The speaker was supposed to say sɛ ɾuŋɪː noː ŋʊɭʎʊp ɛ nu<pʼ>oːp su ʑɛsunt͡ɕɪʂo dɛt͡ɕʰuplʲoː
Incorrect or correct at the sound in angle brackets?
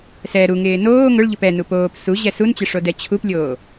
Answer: incorrect: p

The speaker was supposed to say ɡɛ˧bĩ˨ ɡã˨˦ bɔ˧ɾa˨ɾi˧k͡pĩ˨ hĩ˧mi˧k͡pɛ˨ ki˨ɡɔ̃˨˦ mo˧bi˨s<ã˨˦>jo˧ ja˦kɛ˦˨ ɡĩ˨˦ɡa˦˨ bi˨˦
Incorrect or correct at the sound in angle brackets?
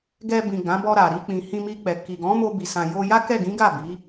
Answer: incorrect: ã˨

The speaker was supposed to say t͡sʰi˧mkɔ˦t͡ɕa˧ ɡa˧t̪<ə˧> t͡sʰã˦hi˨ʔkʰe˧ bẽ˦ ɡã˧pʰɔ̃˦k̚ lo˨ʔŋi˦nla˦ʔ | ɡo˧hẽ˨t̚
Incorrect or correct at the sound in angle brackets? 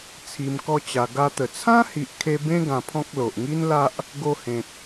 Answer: incorrect: ə˨˩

